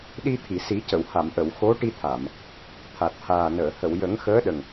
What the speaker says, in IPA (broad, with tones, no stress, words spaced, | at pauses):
ɗi˧t̪ʰi˨˩˨si˨˩˦cə˨˩˨w ha˨˩˨mʔə˨˩˨w xo˧˥ʈi˧t̪ʰa˨˩˨m | t̪ʰa˨˩t̚haː˨˩nəː˨˩˨ hə˨˩˨w jə˨˩˦ŋ xəː˧˥ɗə˨˩ŋ